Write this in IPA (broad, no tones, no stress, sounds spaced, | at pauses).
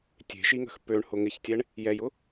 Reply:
tʲ e̤ ʃ i ŋ ə̤ x p ø ɳ h ʊ ŋ ɪ ç tʲ ɛ ɳ | j ɛ j ʊ